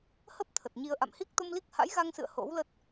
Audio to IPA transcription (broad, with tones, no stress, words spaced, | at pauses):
hə˦˥p̚ t̪ʰə˨˩t̚ɲi˧ə̯ ʔa̰˧˨mhi˦˥k̚t̪o˧mli˦˥k̚ ha̰˧˥jɣa˧ŋsɨ̰˧˨ə̯ ho̰˧˥wlə˦˥t̚